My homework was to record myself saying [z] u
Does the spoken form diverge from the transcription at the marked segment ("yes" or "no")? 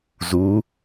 no